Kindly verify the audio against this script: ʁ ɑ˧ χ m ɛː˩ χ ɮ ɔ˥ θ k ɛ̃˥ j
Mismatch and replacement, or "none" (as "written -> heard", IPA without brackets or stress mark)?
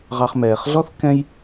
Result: none